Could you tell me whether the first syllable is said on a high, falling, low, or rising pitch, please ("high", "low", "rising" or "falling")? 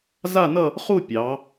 falling